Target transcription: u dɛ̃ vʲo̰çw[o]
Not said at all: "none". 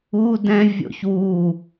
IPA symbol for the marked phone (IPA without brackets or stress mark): u